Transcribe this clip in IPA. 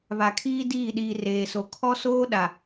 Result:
β a˨ kʰ iː˦ d iː˦˨ ɗ iː˨ r eː˨ s o˨ kʰ ɔ˦ s oː˦ ɗ a˨

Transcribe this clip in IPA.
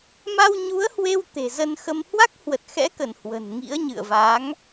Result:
m a˧ w ɲ u˨˦ ə̯ h w e˧ w t̪ e̤˨˩ z ə˧ n x ə˧ m h w a˦˥ k̚ h w ə˨˩ t̚ x ɛ̰˧˥ k ə˧˩ n h w ə̤˨˩ n ŋ ḭ˧˥ ə̯ ɲ ɨ̰˧˨ ə̯ v a˨˦ ŋ

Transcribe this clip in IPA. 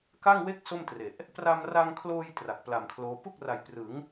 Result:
k a˥˩ ŋ w e˥˩ k̚ s o˥˩ m t r e˨˩ ʔ | p r a˧ m r a˧ ŋ kʰ l oː˧ j t r a˨˩ k̚ p l a˨˩ m kʰ l oː˦˥ p u˥˩ k̚ r a˨˩ j p r ɯ˩˦ ŋ

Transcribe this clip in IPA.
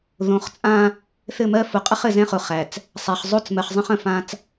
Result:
ð õ˨ χ t͡sʼ ã˦ | θ ɘ˦˨ m ɜ˦ f ʊ˨ qʼ ə˦ χ ɘ˨ z ɛ̃˦ χ ʊ˨ χ æ˨ t͡s | sˤ æ˨ χ zˤ o˦ t͡s m ɜ˨ χ zˤ ə̃˦ χ ə̃˨ f ã˦ t͡s

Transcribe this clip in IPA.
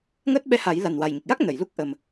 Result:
ŋ əː˦˥ t̚ ɓ ɛ˧ h a˨˩˦ j l a˨˩ n w a˨˩ j ɲ ə˨˩ k̚ j a˦˥ k̚ n ə˨˩˨ j l u˦˥ k̚ ʔ ə˨˩ m

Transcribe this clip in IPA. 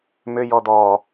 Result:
m ʏ j ɔ d̪ ɔː

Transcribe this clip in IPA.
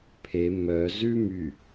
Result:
pʰ e m œ z ʉ m y

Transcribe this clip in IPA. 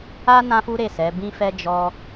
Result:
a˦ n ã˦ f u˦ ɾ e˦˨ s ɛ˨˦ b ĩ˦ f ɛ˦ d͡ʒ ɔ˦

